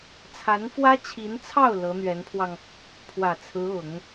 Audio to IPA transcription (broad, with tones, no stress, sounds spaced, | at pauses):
t͡sʰ a˧˥ n f w ä˥ t͡ɕʰ i˧˥ n t͡sʰ ɑ˥˩ ʊ̯ l ɤ˧˥ n̪ ɥ ɛ˧˥ n pʰ w ɑ˧ ŋ | pʰ w ä˨˩ t͡sʰ ɹ̩˧˥ ʊ˨˩˦ ŋ